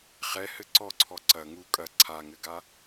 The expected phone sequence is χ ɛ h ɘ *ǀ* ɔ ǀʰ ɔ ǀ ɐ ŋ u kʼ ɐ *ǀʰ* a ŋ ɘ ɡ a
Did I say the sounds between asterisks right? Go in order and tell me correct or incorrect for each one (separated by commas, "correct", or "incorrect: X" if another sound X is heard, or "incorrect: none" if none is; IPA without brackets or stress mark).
correct, correct